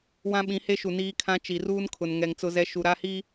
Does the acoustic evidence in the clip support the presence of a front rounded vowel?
no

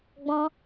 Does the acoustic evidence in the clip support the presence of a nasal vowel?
yes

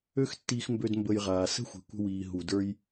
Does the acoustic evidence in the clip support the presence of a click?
no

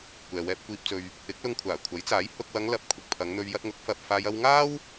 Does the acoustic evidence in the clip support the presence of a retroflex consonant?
no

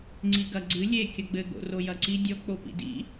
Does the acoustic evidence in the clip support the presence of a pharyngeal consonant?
no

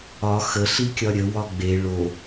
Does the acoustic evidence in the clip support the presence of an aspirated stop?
no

